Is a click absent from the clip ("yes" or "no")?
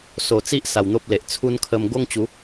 yes